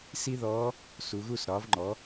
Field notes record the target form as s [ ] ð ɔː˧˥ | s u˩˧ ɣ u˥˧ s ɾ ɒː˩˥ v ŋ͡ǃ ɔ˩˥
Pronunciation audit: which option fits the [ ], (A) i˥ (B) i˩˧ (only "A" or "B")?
A